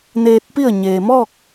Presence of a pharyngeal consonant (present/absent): absent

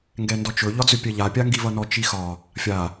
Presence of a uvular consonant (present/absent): absent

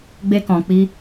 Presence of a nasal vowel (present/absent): present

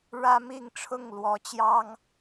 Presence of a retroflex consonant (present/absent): present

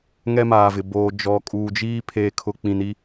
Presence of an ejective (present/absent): present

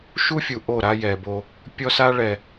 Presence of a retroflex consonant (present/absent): present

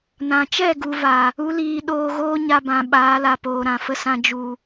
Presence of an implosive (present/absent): present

